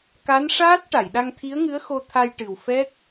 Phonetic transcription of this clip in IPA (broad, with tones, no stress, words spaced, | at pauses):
ka˧˥nʂaː˦˥t̚ ʈa˨˩˨jɗa˧ŋt̪ʰi˧˥ə̯ŋɨ˧˥ə̯ xo˧t̪ʰa˧jʈɨ˨˩w fɛ˦˥k̚